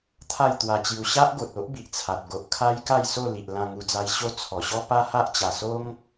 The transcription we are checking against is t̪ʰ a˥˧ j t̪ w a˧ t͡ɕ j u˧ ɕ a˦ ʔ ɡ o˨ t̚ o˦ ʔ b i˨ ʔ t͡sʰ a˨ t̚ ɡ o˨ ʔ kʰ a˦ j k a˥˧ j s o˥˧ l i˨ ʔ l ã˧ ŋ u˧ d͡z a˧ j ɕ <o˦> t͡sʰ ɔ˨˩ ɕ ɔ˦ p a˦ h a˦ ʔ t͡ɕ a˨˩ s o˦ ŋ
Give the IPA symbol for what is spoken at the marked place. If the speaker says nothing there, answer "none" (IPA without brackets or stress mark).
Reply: o˦